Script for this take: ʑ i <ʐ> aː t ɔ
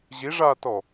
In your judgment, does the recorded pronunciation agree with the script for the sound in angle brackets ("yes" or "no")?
yes